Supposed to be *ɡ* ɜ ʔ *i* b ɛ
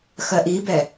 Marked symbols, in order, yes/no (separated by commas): no, yes